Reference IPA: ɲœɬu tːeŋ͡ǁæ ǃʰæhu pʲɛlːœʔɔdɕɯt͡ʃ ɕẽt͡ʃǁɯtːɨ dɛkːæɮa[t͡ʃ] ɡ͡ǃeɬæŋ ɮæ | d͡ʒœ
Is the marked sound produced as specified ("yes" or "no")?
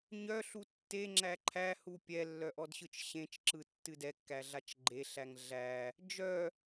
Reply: yes